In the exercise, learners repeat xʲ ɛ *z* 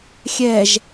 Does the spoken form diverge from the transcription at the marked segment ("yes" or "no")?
yes